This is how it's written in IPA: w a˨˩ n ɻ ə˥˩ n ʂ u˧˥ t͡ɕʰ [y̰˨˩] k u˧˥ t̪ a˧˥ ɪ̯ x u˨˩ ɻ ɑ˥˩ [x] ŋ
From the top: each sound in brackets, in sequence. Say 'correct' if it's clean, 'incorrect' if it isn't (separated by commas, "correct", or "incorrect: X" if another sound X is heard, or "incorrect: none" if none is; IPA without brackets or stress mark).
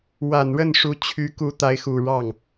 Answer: incorrect: y˧˥, incorrect: none